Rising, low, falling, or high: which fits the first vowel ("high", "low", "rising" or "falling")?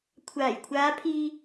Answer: low